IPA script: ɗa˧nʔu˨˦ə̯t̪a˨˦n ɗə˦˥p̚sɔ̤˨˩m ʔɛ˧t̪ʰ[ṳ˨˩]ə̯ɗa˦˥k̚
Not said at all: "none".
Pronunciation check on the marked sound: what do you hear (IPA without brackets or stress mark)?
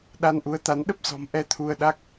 u˧